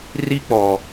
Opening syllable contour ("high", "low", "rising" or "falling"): high